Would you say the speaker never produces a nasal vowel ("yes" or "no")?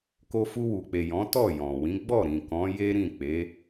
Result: no